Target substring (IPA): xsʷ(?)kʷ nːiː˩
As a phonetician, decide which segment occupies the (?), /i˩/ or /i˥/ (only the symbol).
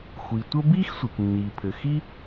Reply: i˩